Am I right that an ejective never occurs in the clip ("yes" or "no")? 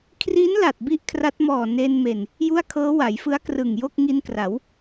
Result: yes